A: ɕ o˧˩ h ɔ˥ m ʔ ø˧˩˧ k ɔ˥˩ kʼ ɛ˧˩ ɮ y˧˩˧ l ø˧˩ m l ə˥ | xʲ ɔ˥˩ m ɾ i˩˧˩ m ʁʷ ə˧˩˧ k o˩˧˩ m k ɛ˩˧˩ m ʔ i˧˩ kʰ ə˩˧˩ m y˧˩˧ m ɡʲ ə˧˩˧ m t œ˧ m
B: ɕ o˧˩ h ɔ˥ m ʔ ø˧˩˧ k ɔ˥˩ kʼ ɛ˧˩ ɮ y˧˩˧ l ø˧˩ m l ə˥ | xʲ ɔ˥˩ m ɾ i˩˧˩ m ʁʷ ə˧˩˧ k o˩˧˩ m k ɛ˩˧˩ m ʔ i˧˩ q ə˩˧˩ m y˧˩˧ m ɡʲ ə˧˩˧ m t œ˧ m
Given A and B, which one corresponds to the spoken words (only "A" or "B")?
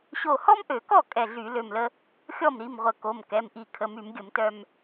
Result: A